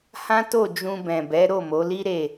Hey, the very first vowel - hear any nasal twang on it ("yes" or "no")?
yes